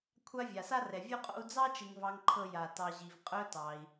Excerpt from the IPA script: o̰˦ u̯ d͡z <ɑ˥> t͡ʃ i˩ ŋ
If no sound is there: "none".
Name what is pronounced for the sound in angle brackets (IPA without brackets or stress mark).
ɑ˥